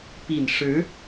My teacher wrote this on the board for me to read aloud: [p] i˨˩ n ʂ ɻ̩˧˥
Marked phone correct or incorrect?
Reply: correct